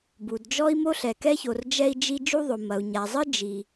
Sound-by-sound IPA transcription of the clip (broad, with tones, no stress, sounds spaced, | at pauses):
b u˩ d d͡ʒ ɔ˥ i̯ m o˥ ɬ ɛ˩ k ɛ˥ ç o˩ r d͡ʒ ɛ˥ i̯ d͡ʒ i˥ d͡ʒ u˥ ðˤ o˩ m ɐ˩ u̯ ɲ a˩ zˤ ɨ˥ d͡ʒ i˩